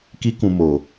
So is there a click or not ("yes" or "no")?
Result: no